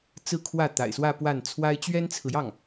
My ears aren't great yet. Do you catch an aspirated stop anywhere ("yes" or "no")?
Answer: yes